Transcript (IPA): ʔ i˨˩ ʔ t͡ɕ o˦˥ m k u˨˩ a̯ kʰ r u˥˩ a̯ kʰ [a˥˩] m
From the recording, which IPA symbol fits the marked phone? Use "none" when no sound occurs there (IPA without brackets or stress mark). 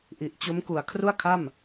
a˥˩